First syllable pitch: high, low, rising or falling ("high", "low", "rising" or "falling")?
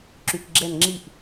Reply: low